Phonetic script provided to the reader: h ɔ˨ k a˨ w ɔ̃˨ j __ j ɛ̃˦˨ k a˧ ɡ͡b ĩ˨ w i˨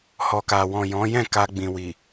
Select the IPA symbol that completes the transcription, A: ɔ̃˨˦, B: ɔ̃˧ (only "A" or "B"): A